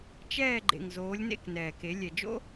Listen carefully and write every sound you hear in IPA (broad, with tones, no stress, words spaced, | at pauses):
t͡ʃɛː˦˨ ɡ͡ǃḛ˨ŋ zoː˨˦lʲnḛ˦˨knɛː˨ke˨˦ lʲɛ˨d͡ʒo̰˦